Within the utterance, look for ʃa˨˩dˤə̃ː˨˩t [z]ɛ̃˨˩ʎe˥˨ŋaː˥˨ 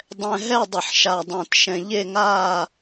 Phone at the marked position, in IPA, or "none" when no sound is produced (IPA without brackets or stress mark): ʃ